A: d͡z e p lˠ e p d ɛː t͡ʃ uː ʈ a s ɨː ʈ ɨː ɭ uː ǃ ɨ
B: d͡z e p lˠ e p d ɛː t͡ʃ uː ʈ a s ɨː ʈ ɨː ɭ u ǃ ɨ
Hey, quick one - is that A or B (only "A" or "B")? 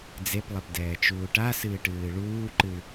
A